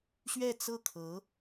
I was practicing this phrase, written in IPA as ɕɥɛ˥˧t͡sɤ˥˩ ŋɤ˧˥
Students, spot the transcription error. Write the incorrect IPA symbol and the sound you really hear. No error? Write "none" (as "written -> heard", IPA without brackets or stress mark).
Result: ŋ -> kʰ